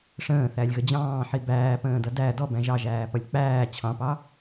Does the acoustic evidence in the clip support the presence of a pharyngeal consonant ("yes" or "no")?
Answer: yes